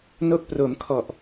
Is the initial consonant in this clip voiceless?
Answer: no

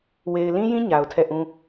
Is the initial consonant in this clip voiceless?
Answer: no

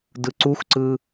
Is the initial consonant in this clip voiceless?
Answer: no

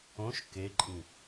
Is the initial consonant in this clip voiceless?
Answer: yes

